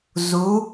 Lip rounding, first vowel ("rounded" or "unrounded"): rounded